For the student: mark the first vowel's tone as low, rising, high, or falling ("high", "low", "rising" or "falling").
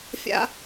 high